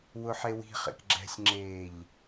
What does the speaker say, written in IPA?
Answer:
w ʊ ħ e w i̤ χ ḛ k ɡ͡ǁ ɛ̤ sʲ ŋ͡ǁ eː ʎ

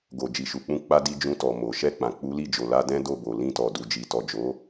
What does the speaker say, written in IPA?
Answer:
ɡ o˨ d͡ʒ i˨ ʃ u˨ k͡p ũ˧ k͡p a˧ d i˧ d͡ʒ ũ˧ t ɔ˨ m o˨ ʃ ɛ˧ k͡p ã˨ k͡p u˨˦ l i˦˨ d͡ʒ o˨ l a˧ d ɛ̃˦ d o˦˨ b o˨ l ĩ˧ t ɔ˨ d u˨ d͡ʒ i˨ t ɔ˨ d͡ʒ o˨˦

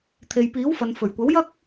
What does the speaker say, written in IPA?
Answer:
t̪ʰ e˨ j p iː˨˥ w f ɐ˨ n f ɵ˨˩ ɥ kʷ ɐ˨˥ w j ɐ˥ k̚

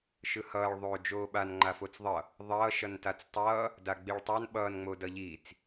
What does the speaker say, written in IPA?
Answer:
ʃ ɯ h ʌː ɭ ðˤ oː d͡ʒ oː ɓ a n ŋ͡ǃ a f o t͡s ðˤ ʌ | ðˤ ʌː ʃ ʌ n t a t͡s tˤ ʌː | d a ɡ͡b i ɭ tˤ a n ɓ ʌː n ŋ͡m o d ʌ ʎ iː t͡s

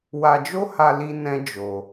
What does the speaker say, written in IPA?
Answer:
w a˧ d͡ʒ o˦ h a˧ l i˧ n ɛ̃˦ d͡ʒ o˧

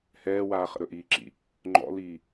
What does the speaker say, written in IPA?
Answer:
h ɛː w aː χ ə̰ ɾ ɵ ʔ iː ǁ ḭ | ŋ͡ǃ ɔ̰ l iː

